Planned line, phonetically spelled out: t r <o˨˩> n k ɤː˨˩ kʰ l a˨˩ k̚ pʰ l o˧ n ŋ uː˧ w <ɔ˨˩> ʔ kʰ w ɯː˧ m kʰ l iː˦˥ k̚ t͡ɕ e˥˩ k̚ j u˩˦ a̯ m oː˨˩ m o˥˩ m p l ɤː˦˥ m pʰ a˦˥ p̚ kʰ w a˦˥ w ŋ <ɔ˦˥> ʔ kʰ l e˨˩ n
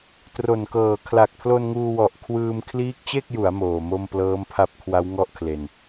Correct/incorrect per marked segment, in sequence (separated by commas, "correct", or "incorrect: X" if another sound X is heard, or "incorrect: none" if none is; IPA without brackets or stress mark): correct, correct, incorrect: ɔ˥˩